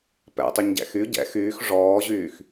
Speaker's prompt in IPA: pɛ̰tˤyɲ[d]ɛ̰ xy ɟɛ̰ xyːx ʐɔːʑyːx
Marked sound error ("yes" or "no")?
yes